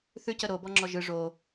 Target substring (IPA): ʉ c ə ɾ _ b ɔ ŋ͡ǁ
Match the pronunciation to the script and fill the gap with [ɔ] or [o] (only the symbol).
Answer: o